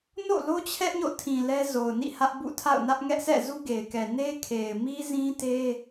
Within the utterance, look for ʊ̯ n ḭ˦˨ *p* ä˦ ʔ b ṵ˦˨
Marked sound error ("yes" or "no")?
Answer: yes